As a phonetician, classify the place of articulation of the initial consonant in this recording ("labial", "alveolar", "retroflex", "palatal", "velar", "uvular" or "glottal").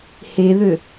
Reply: glottal